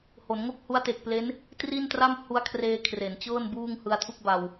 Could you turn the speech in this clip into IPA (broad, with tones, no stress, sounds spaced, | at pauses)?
h o˩˦ n ŋ o˥˩ k̚ h u˦˥ a̯ t e˨˩ k̚ p l e˦˥ n | t r i˥˩ n t r a˥˩ m h u˦˥ a̯ kʰ r eː˧ kʰ r e˩˦ n t͡ɕ ɤː˥˩ n b uː˥˩ ŋ h ɯ˧ a̯ tʰ u˥˩ k̚ b a˧ w